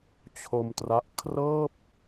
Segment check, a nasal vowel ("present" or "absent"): absent